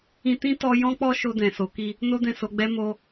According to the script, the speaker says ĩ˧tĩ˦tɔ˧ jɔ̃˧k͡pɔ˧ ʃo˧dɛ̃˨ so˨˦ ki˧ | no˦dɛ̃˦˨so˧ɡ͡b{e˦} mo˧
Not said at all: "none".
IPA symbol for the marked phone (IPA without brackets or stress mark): ɛ˦